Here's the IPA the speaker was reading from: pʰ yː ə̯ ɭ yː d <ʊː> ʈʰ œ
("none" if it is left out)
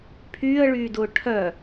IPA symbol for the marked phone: ʊː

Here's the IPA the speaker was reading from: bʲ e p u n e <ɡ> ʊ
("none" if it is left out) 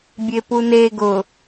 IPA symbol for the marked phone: ɡ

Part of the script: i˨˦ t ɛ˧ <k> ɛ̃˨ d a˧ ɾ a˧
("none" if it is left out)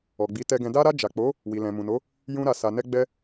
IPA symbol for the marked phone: ɡ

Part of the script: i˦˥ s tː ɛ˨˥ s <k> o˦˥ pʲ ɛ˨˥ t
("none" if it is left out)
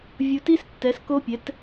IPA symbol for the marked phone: k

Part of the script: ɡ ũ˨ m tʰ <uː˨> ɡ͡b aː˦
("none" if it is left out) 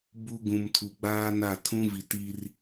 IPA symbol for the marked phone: u˨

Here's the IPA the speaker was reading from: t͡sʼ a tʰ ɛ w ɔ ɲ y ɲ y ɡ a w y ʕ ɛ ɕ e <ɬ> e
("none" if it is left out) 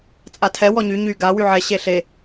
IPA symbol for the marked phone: ɬ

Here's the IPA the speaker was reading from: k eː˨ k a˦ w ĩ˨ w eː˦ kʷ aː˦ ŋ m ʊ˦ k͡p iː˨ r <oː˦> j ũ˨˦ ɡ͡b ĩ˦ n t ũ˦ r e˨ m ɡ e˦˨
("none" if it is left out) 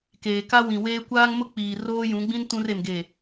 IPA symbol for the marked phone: oː˦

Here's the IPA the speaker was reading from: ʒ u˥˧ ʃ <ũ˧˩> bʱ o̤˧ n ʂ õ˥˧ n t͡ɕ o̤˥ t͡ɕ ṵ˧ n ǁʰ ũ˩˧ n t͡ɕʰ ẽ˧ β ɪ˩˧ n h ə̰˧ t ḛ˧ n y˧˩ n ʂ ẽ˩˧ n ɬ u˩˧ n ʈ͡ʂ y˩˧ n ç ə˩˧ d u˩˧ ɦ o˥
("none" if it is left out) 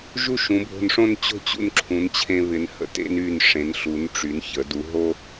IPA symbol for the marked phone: ũ˩˧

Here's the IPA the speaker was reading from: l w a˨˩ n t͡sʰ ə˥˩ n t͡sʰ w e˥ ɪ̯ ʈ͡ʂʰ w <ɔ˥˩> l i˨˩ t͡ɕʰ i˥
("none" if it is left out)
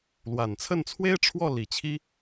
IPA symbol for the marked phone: ɔ˥˩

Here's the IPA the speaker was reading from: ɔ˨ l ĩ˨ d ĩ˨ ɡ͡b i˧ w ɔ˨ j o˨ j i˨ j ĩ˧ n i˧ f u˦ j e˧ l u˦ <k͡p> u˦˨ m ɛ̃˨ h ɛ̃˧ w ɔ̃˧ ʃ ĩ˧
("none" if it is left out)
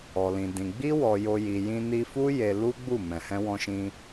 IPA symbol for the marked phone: ɡ͡b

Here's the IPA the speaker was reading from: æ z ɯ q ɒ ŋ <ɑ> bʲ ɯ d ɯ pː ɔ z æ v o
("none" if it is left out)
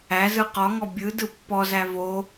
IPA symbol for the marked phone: ɔ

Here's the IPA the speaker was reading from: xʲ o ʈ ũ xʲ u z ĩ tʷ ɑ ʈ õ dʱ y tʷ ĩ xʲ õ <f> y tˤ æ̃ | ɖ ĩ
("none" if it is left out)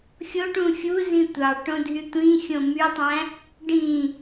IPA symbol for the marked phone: m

